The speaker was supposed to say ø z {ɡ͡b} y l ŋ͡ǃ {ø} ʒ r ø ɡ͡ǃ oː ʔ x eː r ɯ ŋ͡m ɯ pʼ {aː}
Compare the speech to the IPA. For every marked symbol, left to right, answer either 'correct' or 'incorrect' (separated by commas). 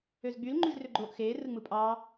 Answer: correct, incorrect, incorrect